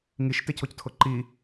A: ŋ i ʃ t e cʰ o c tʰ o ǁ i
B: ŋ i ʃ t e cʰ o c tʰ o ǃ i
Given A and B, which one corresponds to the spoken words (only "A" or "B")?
B